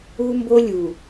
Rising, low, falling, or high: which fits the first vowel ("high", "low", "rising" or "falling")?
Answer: high